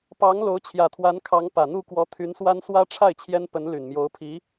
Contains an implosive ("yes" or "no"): no